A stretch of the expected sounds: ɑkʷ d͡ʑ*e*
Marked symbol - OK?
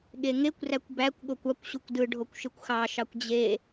yes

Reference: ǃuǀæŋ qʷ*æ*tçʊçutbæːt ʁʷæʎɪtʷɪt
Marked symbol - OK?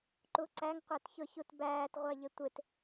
yes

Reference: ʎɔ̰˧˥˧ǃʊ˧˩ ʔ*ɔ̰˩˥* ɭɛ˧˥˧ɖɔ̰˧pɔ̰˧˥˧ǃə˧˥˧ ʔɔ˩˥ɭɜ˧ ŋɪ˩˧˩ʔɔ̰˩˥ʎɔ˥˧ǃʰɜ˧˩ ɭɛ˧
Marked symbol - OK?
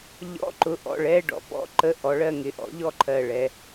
no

